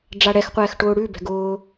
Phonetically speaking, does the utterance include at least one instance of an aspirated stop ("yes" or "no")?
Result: no